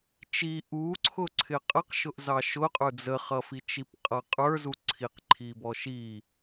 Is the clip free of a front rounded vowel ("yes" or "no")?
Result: yes